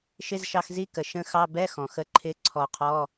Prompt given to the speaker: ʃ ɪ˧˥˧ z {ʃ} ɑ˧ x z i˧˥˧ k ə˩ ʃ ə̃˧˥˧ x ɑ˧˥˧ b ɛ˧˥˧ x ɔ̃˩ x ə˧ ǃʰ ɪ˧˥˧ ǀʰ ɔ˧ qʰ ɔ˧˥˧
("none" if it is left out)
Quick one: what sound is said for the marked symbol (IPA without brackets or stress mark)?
ʃ